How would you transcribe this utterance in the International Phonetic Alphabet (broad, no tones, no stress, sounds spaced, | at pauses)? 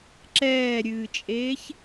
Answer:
ǁ ɛː ɾʲ ɨː t͡ʃʼ eː ç